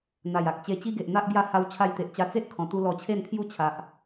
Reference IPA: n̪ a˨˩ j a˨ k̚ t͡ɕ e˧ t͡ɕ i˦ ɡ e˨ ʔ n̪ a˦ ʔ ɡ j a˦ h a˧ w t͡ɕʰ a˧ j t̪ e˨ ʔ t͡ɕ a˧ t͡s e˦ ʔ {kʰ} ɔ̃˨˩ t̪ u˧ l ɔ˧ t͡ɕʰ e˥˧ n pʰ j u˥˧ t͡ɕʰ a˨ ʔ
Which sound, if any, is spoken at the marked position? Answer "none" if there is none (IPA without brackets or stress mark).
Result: kʰ